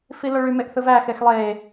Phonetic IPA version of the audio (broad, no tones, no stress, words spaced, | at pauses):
filoɭy meʔθɯvæ xexlˠe